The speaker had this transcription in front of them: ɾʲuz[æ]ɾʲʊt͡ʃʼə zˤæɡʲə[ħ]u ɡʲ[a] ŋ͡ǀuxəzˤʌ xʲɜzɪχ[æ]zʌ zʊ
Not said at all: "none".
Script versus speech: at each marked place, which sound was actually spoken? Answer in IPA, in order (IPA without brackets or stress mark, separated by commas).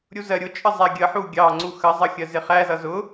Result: ɜ, ħ, ɑ, æ